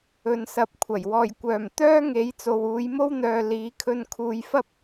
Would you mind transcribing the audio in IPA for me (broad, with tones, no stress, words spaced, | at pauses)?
ɵ˨nsɐ˨˥p̚kʷʰɐ˨˩j wɔː˨˩j kʷœː˨˩mt̪œː˥ ŋe˨˥j t͡so˨wuː˨˧jmo˥wn̪œː˨ liː˨˧kʰɵ˧n kʰuː˨jfɐ˥p̚